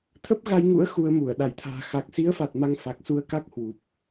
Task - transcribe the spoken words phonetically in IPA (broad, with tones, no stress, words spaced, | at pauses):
t̪ʰə˦˥p̚ɣa˧jŋṵ˧˥ə̯ xu˧ə̯mu˧˩ə̯ ɗa˧˩jt̪ʰa̤ː˨˩ xa˨˩k̚si˨˦ə̯fa˨˩t̚ ma˧ŋfa˨˩k̚ su˧ə̯ka˦˥k̚ hwu˨˩p̚